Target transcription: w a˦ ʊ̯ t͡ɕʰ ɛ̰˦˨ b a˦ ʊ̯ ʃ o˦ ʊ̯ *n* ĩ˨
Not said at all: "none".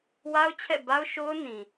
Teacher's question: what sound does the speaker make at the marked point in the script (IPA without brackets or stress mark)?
n